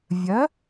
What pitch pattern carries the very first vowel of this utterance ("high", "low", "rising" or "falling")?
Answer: rising